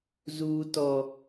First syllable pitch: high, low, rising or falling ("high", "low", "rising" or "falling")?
high